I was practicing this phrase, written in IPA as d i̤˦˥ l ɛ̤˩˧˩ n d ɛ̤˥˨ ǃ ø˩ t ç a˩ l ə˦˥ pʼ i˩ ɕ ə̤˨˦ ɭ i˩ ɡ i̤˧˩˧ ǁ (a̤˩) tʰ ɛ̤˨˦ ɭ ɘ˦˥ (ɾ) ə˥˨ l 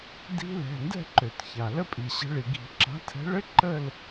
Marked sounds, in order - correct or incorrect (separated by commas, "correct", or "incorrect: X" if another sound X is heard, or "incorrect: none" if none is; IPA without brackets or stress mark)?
incorrect: a̤˨˦, incorrect: ǃ